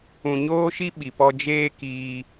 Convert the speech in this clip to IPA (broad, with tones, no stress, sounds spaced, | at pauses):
ũ˨ ɲ oː˦ ʃ i˦ ɓ i˨ p ɔ˧ d͡ʒ eː˦ k iː˧